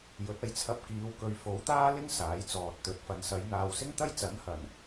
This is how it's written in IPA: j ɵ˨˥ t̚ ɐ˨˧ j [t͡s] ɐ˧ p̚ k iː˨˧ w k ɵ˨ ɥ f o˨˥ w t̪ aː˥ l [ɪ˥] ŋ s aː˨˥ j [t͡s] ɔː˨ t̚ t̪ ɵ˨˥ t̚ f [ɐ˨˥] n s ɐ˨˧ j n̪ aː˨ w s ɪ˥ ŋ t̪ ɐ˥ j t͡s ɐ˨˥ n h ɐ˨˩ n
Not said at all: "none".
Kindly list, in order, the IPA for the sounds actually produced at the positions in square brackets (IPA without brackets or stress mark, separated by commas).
t͡sʰ, ɪ˥, t͡s, ɐ˨